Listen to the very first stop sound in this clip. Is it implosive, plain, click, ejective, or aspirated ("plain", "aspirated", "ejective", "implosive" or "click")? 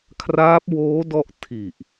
aspirated